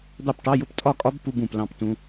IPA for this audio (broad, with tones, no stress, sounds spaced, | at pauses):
d̪ ɑ˥˩ p ʈ ɑ˧˥˧ j ʊ˦˥ p tʼ ɒ˥˩ kʼ ɒ˦˥ b p u˧˥˧ b ũ˨ p l ɑ̃˥˩ p t ũ˦˥